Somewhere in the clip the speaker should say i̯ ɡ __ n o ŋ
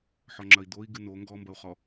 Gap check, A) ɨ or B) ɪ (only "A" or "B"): A